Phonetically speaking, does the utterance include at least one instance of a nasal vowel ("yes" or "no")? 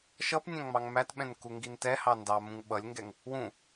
yes